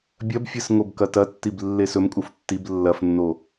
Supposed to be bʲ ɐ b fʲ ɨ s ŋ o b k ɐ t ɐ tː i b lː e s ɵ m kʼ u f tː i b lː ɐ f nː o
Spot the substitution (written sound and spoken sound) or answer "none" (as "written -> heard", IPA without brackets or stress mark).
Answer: none